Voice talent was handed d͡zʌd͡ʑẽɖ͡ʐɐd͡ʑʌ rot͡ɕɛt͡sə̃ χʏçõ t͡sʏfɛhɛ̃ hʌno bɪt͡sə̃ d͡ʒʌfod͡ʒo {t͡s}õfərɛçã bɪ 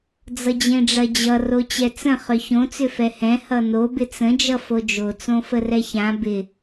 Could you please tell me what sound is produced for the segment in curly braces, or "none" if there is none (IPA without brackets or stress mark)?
t͡s